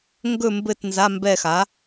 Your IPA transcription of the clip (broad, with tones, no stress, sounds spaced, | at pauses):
ŋ ɡ ɵ˦˨ m b ɘ˦˨ t n z a˧˥˧ m b ɛ˦˨ x a˩˥